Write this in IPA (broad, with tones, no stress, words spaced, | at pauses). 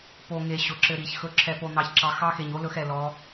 po˨ŋe˨ ɕʊ˨ǁɘ˧ɾi˨ç xɵ˧ǁʰɛ˧ po˧ n̪ɑ˧çǁɑ˧ xɑ˦xe˨ɲ o˦lɵ˧x ɛ˨lɔ˨˦